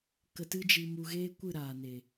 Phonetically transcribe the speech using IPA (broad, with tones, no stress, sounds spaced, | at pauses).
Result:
k ə˧ t ɨ˦ d͡ʒ i˧ m u˧ ɣ eː˦ kʷ ɨ˦˨ ɾ aː˨ n e˨